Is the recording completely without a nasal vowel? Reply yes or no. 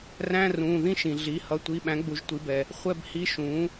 no